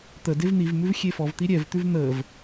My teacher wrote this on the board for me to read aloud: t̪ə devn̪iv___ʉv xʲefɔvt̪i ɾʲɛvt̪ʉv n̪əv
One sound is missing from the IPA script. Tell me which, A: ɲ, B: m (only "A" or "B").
B